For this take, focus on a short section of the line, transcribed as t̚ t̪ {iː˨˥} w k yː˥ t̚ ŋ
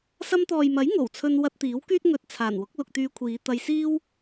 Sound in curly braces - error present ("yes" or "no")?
no